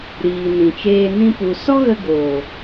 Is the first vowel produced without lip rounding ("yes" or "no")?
yes